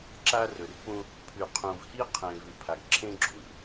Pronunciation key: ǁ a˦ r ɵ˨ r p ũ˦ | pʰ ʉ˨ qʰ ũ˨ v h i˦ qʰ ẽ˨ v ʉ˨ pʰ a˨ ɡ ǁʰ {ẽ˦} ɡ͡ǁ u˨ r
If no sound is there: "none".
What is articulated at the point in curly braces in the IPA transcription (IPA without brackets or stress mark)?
ẽ˦